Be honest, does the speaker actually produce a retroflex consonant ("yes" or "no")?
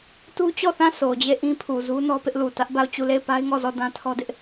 no